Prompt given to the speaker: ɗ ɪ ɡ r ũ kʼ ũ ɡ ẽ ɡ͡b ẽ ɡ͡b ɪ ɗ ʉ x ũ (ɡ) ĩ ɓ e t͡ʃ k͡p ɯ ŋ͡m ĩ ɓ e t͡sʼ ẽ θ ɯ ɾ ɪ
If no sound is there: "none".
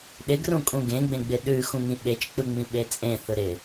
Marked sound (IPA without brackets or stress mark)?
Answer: ŋ